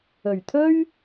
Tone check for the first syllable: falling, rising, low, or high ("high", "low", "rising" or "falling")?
low